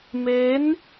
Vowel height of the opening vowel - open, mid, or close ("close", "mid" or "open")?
mid